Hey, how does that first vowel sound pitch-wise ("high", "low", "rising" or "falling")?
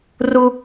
high